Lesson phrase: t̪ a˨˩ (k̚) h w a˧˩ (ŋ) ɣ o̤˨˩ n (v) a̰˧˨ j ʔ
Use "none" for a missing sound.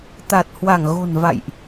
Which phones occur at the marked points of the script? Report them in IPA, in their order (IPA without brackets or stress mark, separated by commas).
t̚, ŋ, v